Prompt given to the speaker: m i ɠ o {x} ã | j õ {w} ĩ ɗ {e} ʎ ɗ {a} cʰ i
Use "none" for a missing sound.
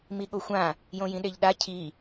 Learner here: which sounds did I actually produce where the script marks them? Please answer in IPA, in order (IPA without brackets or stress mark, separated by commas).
xʷ, j, e, a